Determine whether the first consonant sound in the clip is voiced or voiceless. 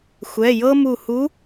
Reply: voiceless